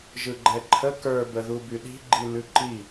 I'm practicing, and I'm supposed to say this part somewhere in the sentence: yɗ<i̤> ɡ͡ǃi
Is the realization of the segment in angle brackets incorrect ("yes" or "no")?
no